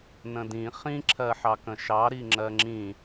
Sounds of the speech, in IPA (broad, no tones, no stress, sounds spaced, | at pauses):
n ə̃ d ĩ χ ĩ ǁʰ ɜ ħ ɑ k ə̃ ʃ ɑ ɾ i ŋ͡ǁ ɜ ŋ͡ǁ ĩ